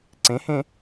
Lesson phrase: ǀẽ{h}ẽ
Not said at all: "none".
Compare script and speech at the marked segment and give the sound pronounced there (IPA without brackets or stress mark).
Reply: h